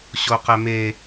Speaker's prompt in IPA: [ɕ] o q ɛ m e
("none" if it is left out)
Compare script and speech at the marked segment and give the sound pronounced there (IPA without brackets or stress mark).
ɕ